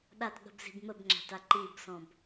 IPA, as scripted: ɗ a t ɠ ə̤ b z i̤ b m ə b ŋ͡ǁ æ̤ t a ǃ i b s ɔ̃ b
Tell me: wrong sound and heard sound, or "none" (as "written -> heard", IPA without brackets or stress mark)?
none